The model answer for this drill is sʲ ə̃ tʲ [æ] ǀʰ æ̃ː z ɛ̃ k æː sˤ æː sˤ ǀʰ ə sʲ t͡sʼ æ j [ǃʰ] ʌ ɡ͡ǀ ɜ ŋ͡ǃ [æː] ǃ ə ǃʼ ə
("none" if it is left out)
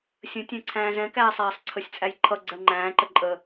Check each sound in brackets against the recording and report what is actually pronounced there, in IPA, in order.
æ̃, ǃʰ, æ̃ː

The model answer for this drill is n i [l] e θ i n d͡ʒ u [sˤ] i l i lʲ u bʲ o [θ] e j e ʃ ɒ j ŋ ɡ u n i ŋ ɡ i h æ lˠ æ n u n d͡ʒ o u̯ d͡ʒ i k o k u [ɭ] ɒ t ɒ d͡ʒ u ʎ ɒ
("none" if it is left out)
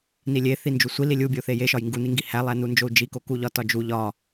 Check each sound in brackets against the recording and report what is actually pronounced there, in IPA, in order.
lʲ, sʷ, θ, ʎ

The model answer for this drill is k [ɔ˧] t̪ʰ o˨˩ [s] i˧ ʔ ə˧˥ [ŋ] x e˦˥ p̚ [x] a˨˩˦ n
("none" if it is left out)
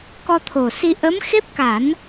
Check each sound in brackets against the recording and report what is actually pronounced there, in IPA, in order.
ɔ˧, s, m, k

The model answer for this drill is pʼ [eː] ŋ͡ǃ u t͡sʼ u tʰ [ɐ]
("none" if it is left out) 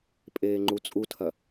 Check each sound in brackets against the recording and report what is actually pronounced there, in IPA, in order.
eː, ɐ

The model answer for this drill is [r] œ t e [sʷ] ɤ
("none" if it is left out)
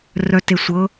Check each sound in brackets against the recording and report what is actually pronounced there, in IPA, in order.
r, sʷ

